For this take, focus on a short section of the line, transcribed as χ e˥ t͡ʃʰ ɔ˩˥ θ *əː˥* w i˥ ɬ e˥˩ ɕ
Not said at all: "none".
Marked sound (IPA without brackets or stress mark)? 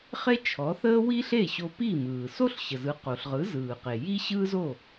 əː˥